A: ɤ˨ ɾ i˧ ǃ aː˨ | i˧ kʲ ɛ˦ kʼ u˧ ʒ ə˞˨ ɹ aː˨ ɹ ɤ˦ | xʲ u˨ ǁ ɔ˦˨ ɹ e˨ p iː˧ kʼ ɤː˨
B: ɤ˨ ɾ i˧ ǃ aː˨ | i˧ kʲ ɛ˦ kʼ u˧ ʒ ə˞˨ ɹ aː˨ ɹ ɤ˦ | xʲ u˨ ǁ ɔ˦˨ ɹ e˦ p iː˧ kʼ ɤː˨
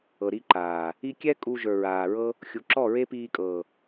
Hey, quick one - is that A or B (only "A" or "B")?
B